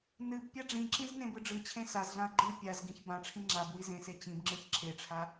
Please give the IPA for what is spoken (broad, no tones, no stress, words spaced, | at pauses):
nɨb pʲaɖ͡ʐĩǁĩz nẽbɯɖ͡ʐɯt͡ɕʰẽ sazɮãɐ̯ ɡ͡ǃɯ pʲaz ɡĩçbãʈ͡ʂʰĩ ŋ͡ǁab wizẽse t͡ɕĩbŋ͡ǁɯç ǁʰeʈ͡ʂʰa